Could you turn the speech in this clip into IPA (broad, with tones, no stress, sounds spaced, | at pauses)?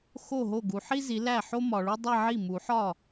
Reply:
x o˥˩ ɦ o˥˩ ɡ u˨ ħ i˥ z i˨˦ l æ˥˩ ħ o˥ m ɒ˨ ɭ u˥ dˤ e˥˧ ʕ i˥˩ m u˨˩˦ ħ ɒ˥˩